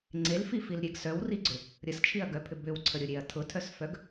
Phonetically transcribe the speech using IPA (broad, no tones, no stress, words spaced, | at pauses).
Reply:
ŋ͡ǀelfifilɾʲeɡ sœwriɡ͡ǀʏ | ɾʲəst͡ʃʰiɐ̯ɡœpʰʏ bʏwǀʰəɾʲʊɾʲeɐ̯ tʰʊtʰœsfœɡ